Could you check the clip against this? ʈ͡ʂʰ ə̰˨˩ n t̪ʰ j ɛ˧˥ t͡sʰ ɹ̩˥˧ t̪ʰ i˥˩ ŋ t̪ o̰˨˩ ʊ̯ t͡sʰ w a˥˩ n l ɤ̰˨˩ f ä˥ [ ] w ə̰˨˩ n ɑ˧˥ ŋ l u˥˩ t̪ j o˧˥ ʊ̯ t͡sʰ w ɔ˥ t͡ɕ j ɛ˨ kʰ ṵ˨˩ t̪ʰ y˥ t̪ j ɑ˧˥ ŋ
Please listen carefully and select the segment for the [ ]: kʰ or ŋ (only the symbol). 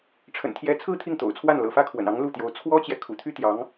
kʰ